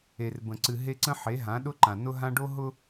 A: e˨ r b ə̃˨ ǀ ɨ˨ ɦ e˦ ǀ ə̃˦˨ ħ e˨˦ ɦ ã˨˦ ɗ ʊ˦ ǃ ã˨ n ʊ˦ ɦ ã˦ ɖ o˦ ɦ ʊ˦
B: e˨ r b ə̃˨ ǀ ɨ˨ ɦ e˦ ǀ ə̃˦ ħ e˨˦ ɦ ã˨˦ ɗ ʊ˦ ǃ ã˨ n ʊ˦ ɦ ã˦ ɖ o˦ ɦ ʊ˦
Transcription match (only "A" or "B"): B